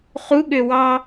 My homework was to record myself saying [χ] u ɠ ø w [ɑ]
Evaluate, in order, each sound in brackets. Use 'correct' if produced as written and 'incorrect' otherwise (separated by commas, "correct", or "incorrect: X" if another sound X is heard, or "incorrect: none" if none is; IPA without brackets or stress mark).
correct, correct